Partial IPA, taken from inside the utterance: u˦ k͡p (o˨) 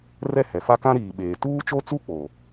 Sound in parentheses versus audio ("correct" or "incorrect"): correct